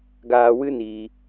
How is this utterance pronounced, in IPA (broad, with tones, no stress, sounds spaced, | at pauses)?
ɡ aː˧ w ɨ˦ n iː˧